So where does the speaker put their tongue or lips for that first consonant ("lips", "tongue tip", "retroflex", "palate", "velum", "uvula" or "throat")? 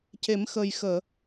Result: palate